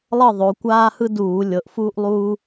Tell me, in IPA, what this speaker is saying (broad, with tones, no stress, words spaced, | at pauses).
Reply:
lˠɤ˥˨ ðˤo˩˧ kʷaː˦ hɯ˦ duː˧˩˧ lʲɤ˩˧ʔfuː˦ʔlˠuː˦